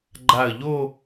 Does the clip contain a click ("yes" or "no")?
yes